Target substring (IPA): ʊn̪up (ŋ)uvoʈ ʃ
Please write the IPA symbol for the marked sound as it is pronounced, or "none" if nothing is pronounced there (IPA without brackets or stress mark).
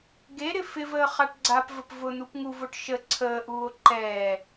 ŋ